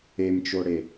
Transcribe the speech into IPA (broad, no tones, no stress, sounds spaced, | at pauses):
e m t͡ʃ o ɽ e